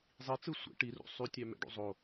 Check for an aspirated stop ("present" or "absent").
absent